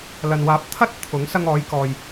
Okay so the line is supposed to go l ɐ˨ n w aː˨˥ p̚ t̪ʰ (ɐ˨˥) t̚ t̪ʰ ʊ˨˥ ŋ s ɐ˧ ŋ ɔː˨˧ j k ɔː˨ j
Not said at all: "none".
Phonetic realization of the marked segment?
ɐ˥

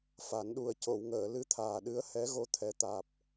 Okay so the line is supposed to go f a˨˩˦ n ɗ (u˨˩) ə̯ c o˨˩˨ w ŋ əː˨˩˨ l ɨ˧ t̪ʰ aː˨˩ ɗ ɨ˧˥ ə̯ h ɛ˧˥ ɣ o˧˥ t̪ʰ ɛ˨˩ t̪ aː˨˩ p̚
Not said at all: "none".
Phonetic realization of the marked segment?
u˨˩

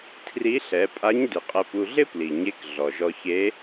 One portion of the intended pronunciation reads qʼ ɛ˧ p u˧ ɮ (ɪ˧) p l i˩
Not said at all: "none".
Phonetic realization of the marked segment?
ɪ˥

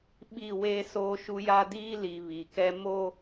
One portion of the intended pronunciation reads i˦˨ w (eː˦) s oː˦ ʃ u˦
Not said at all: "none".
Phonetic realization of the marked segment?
eː˦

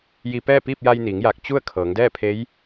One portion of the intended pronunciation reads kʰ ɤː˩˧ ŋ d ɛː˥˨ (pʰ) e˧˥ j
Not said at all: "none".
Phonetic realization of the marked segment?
pʰ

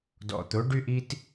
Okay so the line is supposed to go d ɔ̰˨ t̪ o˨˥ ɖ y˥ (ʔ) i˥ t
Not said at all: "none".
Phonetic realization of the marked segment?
ʔ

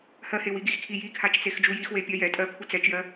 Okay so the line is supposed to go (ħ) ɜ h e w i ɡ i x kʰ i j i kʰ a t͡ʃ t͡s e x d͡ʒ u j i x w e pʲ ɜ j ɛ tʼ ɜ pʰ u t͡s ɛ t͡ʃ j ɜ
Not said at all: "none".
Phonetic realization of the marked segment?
h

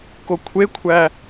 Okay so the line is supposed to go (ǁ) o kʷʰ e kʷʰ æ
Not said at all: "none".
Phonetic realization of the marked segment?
k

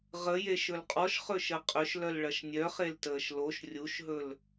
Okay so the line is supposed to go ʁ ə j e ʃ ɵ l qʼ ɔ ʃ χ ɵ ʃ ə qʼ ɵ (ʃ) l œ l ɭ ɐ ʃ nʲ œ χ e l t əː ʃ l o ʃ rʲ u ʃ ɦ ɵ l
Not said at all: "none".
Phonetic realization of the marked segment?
ʃ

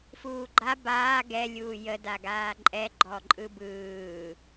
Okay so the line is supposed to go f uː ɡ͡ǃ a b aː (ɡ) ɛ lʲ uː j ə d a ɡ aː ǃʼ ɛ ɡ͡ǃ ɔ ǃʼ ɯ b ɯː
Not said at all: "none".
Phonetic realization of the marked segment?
ɡ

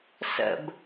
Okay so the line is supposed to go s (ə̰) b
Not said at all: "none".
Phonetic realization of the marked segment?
ə̰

